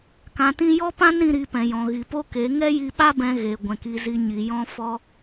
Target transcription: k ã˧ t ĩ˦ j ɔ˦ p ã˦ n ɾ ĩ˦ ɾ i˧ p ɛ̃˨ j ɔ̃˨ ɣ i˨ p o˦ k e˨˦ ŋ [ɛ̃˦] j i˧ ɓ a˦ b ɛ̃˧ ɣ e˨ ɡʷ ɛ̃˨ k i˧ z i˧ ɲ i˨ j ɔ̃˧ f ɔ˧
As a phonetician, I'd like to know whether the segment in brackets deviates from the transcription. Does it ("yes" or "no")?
yes